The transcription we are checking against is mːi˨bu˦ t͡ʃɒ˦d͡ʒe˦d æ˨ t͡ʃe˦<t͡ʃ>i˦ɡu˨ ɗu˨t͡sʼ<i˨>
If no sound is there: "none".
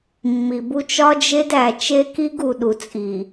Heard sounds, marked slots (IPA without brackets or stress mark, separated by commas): k, i˨